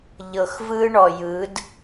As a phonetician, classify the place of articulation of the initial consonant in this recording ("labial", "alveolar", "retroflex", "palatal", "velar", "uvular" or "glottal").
palatal